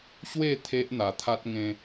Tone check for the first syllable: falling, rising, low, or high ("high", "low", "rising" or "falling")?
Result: falling